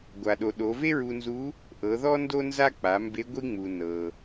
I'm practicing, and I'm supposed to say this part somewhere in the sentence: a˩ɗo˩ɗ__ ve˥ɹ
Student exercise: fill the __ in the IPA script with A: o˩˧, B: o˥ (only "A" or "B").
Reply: A